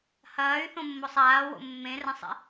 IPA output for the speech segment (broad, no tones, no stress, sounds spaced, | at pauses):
h ɐː y̯ θ õ mː o sˤ aː w o̰ mː ẽ r ɐ̃ sˤ ḛ